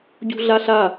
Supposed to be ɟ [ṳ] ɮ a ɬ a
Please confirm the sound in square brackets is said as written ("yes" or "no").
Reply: yes